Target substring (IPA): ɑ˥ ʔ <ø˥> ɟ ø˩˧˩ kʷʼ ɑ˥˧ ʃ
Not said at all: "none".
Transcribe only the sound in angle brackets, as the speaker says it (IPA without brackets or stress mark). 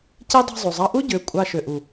u˥